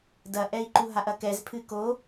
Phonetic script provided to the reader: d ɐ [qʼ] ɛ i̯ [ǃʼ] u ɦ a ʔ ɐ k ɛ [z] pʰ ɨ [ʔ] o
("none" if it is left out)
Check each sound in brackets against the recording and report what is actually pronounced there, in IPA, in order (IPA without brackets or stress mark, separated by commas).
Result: ʔ, ǃ, z, k